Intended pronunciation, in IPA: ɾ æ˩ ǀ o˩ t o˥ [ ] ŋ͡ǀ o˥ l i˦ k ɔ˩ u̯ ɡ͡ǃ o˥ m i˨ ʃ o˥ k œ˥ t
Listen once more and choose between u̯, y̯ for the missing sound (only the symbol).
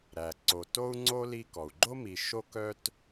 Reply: u̯